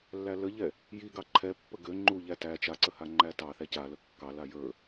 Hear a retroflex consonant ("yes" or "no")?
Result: no